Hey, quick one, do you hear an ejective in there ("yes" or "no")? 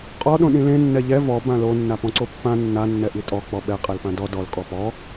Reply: yes